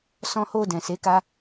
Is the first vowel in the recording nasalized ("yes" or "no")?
yes